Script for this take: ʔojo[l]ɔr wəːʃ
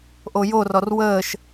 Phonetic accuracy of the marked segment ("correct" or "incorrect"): incorrect